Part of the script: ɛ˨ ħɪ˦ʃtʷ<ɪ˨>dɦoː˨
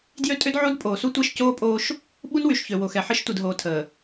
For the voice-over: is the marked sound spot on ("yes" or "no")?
no